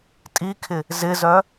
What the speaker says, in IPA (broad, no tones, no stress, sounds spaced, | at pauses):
tʼ i kʰ ɪ | z ɪ z œ